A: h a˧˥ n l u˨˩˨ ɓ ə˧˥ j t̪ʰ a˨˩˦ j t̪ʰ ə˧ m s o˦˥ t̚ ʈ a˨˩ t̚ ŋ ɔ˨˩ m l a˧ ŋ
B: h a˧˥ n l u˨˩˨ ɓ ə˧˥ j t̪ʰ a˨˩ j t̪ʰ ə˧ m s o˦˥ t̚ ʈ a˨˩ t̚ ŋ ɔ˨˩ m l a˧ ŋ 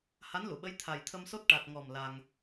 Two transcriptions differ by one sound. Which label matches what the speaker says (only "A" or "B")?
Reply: B